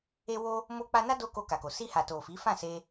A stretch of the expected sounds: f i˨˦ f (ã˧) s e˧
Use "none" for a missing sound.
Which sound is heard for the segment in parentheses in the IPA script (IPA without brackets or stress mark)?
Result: ã˦˨